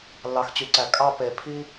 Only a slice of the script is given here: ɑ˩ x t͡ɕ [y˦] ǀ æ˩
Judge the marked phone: incorrect: y˩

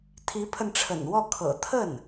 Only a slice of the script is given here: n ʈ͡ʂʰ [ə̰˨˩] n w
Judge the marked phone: correct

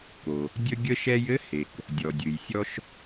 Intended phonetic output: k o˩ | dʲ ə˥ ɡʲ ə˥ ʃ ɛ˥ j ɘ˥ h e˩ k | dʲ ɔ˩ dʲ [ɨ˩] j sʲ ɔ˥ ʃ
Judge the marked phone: correct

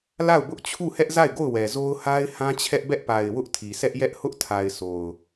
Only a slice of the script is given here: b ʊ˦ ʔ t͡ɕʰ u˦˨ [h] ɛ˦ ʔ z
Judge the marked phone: correct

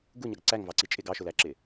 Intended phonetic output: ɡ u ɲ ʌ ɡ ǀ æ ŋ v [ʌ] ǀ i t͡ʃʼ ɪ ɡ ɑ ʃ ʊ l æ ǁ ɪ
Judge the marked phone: incorrect: ɑ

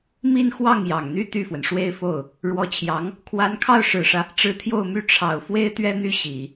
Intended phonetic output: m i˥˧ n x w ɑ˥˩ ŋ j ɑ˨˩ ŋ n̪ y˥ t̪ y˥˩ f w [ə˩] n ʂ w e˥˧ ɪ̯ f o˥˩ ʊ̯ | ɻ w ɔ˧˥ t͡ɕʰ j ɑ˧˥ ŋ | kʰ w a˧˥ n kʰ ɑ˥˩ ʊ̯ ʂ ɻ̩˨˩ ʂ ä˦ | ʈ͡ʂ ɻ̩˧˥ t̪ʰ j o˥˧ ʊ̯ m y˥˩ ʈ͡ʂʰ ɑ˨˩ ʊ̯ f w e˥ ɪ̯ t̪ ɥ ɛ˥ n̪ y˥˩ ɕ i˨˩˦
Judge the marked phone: correct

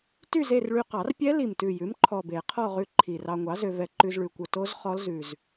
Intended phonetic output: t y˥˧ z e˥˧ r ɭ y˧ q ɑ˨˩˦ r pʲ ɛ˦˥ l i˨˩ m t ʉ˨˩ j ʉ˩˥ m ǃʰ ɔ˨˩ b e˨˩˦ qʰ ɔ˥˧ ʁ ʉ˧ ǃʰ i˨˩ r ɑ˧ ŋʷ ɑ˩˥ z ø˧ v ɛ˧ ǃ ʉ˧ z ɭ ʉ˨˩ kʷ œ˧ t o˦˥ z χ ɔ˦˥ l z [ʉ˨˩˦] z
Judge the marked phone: incorrect: ʉ˨˩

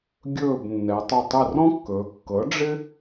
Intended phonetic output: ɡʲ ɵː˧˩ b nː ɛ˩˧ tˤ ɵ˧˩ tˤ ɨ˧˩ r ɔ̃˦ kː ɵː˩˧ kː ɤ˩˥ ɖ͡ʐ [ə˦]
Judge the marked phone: incorrect: ɪ˦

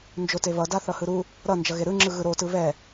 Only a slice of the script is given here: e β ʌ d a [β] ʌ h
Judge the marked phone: incorrect: θ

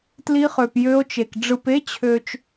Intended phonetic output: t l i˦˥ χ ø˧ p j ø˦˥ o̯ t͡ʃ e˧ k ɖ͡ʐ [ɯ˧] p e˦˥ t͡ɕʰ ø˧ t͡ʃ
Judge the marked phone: correct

